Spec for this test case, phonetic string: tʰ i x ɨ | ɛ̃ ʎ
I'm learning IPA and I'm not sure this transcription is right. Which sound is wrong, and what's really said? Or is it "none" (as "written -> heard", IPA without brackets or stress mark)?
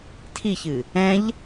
x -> ç